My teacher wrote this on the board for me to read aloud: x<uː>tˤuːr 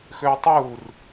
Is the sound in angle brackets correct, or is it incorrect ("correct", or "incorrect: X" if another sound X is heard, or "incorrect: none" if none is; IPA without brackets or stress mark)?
incorrect: øː